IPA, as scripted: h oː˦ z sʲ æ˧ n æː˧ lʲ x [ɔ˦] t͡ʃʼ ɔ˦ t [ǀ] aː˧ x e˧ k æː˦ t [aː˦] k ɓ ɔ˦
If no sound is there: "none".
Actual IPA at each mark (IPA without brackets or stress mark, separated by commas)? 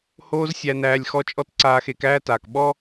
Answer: ɔ˦, ǀ, aː˨